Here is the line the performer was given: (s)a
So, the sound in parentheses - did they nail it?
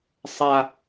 no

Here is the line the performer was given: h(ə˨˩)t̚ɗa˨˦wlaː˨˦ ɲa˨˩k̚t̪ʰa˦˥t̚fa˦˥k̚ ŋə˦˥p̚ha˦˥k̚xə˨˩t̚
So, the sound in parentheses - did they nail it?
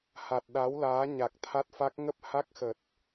no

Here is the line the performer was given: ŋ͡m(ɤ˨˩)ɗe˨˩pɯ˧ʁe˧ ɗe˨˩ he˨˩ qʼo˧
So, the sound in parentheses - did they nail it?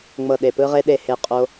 yes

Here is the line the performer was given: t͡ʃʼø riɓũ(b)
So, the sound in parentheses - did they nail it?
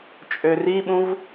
no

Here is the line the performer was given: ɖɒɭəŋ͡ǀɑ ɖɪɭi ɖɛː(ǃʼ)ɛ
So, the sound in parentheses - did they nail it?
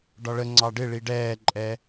yes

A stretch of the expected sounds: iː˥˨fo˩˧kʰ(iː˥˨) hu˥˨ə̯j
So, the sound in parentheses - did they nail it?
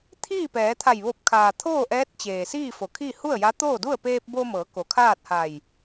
yes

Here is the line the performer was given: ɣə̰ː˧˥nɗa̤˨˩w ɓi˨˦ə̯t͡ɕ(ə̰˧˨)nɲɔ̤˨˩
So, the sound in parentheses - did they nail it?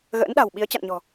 no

